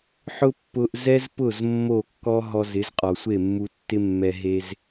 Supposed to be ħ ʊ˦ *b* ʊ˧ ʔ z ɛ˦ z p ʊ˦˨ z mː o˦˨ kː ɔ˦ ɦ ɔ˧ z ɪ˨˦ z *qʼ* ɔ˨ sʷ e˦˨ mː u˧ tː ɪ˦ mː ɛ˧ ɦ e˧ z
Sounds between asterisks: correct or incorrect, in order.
incorrect: pː, correct

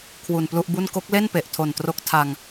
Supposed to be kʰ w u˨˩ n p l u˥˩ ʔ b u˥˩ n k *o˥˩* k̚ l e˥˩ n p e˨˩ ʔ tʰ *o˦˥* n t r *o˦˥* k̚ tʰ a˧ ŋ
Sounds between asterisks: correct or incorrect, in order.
incorrect: o˦˥, incorrect: o˨˩, correct

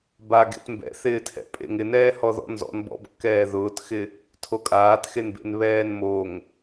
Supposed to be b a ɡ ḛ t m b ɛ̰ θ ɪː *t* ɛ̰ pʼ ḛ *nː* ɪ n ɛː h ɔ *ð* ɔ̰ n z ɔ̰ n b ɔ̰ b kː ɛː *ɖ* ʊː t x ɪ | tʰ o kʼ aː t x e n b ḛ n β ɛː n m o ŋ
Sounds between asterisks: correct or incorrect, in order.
incorrect: tʰ, incorrect: ŋ, correct, incorrect: ð

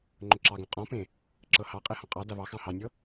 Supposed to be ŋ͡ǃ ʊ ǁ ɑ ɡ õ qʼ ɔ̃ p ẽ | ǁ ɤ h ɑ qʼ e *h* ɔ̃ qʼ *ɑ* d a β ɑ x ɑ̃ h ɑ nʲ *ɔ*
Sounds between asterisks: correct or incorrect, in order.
correct, correct, incorrect: ɤ

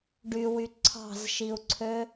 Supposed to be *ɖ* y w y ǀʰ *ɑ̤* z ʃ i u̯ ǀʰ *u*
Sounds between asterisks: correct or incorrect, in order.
correct, correct, incorrect: ø

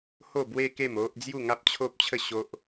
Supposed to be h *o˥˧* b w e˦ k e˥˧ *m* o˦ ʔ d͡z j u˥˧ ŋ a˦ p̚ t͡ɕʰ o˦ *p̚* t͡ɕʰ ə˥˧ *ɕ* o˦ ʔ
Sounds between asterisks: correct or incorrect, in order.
correct, correct, correct, correct

